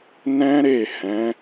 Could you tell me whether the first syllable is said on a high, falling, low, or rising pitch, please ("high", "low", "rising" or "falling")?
high